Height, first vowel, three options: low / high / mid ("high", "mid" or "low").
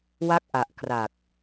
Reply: low